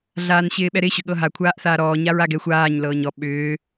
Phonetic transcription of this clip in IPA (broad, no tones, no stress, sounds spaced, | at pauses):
ɮ aː n ɕ ɪː ɓ ɛ ɾ ɪ ɕ ʏ ɠ ɤ ɦ a kʷʰ aː ʔ θ aː ɾ ɔː ɲ a ɹ a ɡ ɛ xʷ aː ɲ l ɤː ɲ ɔ ɓ ʏː